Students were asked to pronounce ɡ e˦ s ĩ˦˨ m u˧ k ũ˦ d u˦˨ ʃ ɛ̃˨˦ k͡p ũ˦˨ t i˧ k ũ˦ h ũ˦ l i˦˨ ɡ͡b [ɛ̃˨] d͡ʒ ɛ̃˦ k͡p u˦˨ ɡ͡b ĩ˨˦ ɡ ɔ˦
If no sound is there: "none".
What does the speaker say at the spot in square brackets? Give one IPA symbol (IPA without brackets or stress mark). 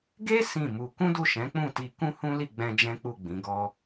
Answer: ɛ̃˧